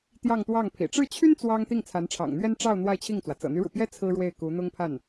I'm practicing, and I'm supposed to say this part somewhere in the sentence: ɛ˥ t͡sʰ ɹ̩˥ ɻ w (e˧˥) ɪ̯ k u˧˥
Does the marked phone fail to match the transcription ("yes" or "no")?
yes